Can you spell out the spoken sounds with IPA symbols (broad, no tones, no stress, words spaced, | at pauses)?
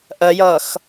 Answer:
ʔɜjʌːx